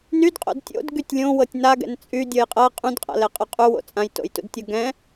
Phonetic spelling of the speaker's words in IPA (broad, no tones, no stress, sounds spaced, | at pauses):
n y d qʼ o̰ d tʲ o̰ d ɡ y tʲ lʲ õ w ɤ tʲ n a ɡ ɛ̰ n t͡sʼ y dʲ ɤ j qʼ ɤ qʼ ũ d qʼ a̰ l ɛ qʼ ʊ qʼ u w o̰ t͡sʼ ã j t o̰ j t ṵ d tʲ ɤ ɡ ɛ̃